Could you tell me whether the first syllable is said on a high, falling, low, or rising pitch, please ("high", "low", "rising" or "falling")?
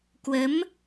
rising